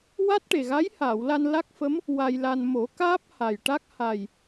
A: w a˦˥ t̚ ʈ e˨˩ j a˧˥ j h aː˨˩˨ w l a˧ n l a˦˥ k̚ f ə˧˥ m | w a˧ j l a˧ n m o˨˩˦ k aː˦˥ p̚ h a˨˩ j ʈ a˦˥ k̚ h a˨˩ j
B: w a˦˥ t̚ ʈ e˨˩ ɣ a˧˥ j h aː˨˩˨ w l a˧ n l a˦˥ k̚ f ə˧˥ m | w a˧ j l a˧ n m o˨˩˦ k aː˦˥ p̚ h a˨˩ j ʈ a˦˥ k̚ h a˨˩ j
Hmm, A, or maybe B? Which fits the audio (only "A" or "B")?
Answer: B